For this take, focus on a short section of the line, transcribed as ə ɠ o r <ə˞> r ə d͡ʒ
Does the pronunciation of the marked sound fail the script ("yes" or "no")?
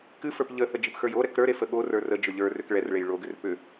no